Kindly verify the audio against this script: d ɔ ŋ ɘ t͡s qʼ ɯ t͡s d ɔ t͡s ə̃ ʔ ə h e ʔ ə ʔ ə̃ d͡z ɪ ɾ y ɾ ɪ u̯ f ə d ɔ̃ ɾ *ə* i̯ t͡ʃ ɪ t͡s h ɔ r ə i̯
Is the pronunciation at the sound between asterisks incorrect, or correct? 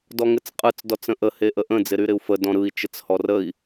incorrect